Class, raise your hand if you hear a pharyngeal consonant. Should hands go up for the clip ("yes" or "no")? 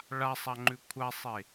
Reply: no